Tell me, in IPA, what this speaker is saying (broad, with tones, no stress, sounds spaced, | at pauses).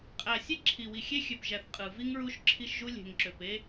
qʼ æ˨ sʲ e˦ ǁʰ i˨ w i˨ xʲ e˦ xʲ ø˨ p ʒ æ˨ θ qʼ ɯ˨ v i˦ ŋ ɹ u˦ ʃ ǁʰ i˦ ʃ ʒ u˦ lʲ e̤˨ ŋ ǁ ø˨ p e˦